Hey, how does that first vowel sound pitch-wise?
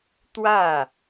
falling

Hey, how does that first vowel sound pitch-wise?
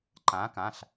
rising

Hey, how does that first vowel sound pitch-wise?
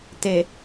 low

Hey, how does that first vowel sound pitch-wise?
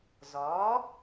rising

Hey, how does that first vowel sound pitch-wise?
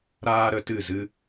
high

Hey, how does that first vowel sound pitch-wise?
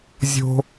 high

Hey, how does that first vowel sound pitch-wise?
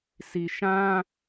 low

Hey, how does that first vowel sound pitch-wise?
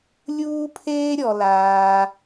high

